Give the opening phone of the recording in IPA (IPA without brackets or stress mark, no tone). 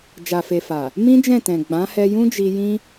d͡ʒ